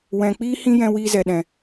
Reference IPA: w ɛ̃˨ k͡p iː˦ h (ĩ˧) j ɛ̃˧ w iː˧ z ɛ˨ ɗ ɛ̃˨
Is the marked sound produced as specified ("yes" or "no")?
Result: no